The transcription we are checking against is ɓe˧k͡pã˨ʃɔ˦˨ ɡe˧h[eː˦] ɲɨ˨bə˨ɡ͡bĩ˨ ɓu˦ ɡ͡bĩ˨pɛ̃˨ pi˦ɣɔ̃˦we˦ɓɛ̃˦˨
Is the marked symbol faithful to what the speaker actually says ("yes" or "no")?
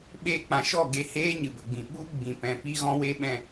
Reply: yes